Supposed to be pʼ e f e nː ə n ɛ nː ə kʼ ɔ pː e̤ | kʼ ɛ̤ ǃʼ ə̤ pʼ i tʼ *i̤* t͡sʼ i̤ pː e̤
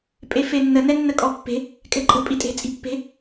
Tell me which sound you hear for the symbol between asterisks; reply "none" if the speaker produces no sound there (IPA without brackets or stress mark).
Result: e̤